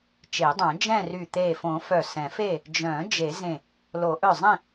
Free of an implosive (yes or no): yes